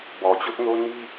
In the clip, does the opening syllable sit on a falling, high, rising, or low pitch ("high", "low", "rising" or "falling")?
low